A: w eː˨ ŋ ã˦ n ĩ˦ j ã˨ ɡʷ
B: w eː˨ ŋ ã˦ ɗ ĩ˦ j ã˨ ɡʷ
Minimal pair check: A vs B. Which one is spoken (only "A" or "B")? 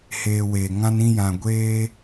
A